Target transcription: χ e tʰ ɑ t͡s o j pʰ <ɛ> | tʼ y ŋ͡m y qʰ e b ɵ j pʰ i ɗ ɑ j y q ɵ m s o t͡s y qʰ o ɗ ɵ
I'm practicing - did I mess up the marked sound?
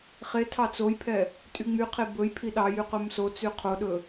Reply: no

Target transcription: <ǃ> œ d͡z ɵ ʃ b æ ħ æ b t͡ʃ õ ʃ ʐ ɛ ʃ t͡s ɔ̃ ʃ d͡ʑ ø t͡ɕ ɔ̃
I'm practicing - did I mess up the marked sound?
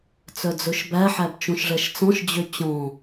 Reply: yes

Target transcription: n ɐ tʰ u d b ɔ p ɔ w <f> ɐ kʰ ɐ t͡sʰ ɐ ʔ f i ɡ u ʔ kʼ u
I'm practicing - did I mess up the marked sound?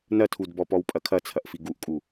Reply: yes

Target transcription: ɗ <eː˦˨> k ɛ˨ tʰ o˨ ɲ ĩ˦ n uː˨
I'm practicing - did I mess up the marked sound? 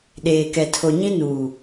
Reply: yes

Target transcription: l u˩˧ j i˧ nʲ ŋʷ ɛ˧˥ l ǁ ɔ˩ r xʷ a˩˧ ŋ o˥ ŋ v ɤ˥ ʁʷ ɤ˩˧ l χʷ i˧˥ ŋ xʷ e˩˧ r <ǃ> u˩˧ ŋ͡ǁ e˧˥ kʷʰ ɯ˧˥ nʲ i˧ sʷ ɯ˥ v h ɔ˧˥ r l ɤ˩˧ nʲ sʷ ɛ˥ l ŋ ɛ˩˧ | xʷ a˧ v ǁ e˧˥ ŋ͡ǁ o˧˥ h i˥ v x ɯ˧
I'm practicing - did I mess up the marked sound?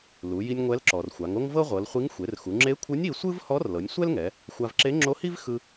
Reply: yes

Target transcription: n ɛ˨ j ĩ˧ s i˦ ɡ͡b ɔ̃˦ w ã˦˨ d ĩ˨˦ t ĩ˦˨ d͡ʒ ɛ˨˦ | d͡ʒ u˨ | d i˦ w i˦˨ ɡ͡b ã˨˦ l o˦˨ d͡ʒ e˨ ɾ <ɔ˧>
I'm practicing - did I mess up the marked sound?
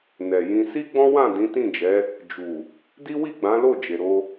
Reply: yes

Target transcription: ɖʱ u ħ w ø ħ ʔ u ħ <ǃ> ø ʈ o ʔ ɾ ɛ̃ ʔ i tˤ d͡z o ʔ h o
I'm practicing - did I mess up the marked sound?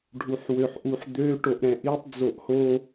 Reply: yes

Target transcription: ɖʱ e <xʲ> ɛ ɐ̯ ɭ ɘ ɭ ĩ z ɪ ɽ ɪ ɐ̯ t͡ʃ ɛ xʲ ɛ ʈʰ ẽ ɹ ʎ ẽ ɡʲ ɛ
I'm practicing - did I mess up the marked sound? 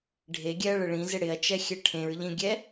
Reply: yes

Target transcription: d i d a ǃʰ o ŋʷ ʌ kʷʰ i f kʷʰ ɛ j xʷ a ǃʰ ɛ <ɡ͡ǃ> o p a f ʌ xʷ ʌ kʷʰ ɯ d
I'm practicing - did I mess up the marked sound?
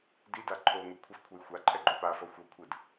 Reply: no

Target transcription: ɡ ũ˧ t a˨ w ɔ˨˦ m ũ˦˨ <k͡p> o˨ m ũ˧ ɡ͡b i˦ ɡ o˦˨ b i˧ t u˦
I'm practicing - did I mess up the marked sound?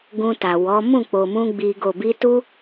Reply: no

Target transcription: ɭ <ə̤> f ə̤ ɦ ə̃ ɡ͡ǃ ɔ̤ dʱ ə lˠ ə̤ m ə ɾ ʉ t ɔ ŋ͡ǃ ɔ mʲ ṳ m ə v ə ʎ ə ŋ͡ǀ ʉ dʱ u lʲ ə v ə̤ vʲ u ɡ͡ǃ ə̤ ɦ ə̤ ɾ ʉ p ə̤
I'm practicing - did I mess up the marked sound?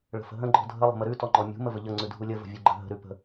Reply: no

